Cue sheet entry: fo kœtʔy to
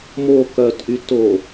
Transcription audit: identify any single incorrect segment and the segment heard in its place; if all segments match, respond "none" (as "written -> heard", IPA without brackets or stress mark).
f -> m